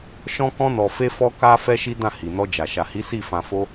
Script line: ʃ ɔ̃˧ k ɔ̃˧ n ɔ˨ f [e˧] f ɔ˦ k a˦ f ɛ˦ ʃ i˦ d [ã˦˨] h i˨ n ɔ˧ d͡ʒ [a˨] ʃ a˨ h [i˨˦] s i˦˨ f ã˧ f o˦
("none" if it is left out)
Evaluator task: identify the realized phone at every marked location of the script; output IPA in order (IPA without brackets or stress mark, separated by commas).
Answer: e˧, ã˦˨, a˨, i˨˦